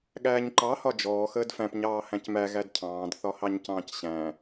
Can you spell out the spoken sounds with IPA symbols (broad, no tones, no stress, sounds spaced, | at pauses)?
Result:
ɠ æː ɲ ǃ ɑ h ɒ d͡ʒ ɔː x əː d f æ̃ p ɲ ɑː h æ̃ c m æ ɣ æ d cʰ ɑ̃ː d θ ɒ h ɑ ɲ c ɑ̃ː c ɕ æ̃